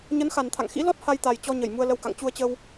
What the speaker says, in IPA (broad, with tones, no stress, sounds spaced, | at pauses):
ɲ ə˨˦ n x a˨˩ n t̪ʰ a̰˧˨ ŋ x ḭ˧˥ l ɔ˦˥ t̚ h a˧ j t̪ a˨˩ j t͡ɕ ɔ˧ ɲ ə˧˩ j m u˧ ə̯ l ə˧ w k a̰˧˨ ŋ t͡ɕ u˧ ə̯ t͡ɕ ə˧ w